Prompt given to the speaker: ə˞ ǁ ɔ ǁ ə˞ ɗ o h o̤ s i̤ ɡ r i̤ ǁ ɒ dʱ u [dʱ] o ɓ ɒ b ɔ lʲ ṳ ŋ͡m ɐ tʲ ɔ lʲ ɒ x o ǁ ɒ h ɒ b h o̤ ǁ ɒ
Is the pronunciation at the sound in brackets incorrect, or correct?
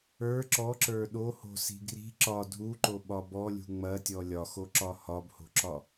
incorrect